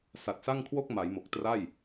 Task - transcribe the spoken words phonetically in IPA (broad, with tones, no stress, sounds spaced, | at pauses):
s a˨˩ t̚ s a˥˩ ŋ kʰ w o˥˩ k̚ m a˩˦ j m o˨˩ k̚ t r a˥˩ j